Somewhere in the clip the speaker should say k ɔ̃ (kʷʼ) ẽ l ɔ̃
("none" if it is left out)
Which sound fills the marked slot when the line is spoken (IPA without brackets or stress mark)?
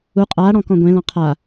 ɡʷ